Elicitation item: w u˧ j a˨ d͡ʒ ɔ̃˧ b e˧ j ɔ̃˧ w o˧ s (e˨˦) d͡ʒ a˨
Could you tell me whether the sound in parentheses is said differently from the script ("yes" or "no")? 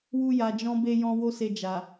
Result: yes